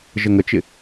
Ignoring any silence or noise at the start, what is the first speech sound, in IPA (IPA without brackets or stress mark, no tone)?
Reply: ʒ